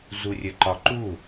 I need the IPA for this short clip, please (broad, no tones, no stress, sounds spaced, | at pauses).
z u rʲ ə ǃ ɒ ǃ u